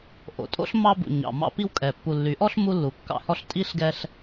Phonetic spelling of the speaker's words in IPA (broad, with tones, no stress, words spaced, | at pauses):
ʔo̰˨tʼo̰˦ɬ mɑ˦bṵ˨ ɲɑ̰˨ mɑ̰˦pi˦wkʼɛ˨ pːu˨lːy˨˦ʔɔ˦ɬ mu˦lːu˨kːɑ̰˦hɔ˦ɬ tʼi˦ɬɡɛ˦ɬ